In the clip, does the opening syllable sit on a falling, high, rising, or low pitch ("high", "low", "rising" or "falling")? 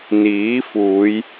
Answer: rising